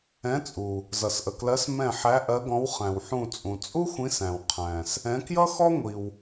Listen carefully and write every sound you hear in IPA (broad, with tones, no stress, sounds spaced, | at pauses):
ɛ̃˨˦ t͡sʼ u˩ | z ʌ˩ s ʔ ə˩ k l ɜ˨˦ s m ɛ̃˧˩ ħ æ˨˦ ʔ ɜ˨˦ ɡ ɔ̃˨˦ w χ æ̃˩ w ħ ũ˧˩ t͡sʼ ũ˩ t͡sʼ u˥ xʷ ĩ˨˦ s æ̃˩ w qʰ æ̃˩ s | ɛ̃˨˦ k j ʌ˥ x ɔ˥ ŋʷ i˩ w